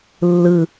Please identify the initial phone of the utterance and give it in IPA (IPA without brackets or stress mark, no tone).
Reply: lː